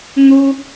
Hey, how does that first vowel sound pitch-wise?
high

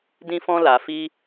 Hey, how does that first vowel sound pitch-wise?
high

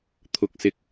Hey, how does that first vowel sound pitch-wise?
rising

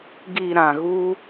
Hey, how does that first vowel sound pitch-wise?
low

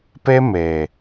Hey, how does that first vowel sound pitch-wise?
high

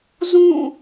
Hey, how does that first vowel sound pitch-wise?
falling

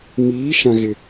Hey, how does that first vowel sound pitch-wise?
rising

